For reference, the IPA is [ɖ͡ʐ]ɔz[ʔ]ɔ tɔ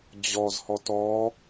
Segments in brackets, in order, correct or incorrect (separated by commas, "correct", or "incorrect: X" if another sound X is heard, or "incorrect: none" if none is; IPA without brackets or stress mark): incorrect: d͡ʑ, incorrect: h